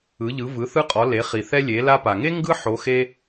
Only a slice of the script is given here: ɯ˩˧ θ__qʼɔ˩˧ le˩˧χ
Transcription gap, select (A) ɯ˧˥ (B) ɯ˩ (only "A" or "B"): A